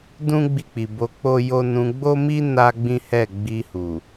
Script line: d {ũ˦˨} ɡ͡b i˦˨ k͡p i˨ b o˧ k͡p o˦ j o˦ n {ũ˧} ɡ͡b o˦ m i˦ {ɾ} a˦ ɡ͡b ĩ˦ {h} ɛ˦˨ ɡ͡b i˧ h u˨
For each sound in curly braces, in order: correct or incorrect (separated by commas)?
incorrect, correct, incorrect, correct